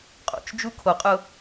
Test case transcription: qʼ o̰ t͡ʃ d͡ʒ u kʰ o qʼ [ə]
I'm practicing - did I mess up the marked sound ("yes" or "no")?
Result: yes